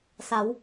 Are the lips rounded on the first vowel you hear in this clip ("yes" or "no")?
no